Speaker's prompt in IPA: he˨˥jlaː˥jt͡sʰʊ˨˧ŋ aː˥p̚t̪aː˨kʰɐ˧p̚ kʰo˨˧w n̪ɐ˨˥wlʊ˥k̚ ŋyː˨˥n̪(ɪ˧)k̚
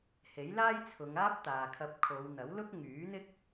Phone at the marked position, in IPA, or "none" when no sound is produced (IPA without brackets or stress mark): ɪ˥